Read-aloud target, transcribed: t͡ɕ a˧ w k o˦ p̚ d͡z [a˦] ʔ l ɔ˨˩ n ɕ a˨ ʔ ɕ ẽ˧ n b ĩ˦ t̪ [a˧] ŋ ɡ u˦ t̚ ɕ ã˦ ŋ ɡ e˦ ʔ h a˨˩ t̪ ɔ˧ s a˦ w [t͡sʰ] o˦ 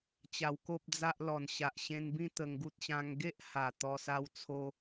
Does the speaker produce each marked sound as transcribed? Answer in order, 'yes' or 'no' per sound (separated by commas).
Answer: yes, no, yes